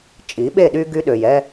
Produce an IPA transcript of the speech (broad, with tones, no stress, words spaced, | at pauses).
t͡ʃʼi˨˦ɓe˦˨ɗy˦ ɡy˦ɗø˨jɛ˦